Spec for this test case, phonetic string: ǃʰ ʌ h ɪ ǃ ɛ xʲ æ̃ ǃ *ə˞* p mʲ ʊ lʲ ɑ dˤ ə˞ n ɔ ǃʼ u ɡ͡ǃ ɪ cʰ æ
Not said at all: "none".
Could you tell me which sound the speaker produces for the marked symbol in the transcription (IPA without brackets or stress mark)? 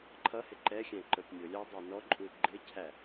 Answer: ə˞